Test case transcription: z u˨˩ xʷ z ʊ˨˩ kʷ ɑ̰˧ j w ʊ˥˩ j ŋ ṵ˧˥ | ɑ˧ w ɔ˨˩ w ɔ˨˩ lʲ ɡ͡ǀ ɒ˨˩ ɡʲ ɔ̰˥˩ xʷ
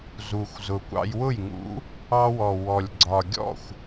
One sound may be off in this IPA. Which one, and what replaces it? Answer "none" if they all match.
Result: none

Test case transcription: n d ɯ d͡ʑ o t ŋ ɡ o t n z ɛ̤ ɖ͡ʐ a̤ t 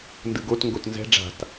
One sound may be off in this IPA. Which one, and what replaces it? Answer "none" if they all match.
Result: d͡ʑ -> ɡ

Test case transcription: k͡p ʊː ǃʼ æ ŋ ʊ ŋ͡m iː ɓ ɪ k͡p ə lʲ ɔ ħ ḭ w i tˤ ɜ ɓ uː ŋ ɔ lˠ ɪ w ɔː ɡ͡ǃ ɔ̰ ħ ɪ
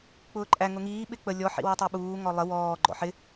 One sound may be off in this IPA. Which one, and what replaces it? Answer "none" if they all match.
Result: ŋ͡m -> ŋ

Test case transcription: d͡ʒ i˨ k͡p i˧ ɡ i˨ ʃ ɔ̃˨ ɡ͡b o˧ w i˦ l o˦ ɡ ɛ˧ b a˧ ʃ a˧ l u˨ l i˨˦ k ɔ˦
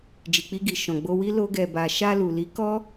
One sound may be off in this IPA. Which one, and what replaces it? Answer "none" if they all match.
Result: none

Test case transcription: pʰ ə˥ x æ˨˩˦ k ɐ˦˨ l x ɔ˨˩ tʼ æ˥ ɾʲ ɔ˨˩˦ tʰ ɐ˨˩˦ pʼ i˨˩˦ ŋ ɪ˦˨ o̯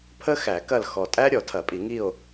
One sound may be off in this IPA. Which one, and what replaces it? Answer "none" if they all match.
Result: ɪ˦˨ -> i˦˨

